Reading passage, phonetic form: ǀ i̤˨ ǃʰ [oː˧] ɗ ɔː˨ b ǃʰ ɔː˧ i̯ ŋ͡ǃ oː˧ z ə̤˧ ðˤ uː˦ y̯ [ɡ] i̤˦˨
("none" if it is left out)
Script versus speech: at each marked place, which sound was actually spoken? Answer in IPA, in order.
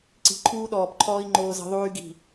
uː˧, ɡ

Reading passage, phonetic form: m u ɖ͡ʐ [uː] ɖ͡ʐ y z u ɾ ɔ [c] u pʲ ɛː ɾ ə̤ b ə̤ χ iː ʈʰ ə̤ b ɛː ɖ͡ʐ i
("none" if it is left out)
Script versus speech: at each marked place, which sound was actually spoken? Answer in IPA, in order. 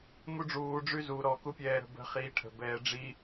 uː, k

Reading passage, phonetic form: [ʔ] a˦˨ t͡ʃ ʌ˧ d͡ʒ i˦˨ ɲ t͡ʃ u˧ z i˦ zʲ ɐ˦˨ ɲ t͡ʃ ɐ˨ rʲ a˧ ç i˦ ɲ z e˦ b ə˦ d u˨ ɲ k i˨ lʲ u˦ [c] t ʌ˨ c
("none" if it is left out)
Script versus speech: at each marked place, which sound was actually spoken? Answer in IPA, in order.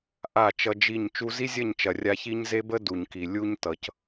ʔ, ɲ

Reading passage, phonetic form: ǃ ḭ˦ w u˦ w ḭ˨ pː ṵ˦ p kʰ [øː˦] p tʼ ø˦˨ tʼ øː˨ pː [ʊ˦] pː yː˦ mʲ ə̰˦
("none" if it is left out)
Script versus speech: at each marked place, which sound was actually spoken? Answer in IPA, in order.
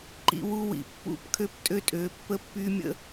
ø˦, ə˦

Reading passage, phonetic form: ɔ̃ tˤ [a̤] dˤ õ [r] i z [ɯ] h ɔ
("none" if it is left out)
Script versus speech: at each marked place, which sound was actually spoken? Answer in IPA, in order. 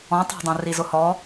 a̤, r, ʊ

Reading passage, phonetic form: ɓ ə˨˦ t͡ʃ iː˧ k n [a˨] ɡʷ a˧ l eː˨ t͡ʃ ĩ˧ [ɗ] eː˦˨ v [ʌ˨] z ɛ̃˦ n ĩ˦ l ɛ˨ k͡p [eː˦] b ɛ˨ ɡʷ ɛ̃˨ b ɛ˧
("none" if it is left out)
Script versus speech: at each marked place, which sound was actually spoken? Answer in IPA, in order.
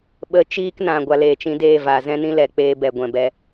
ã˨, d, a˨, eː˧

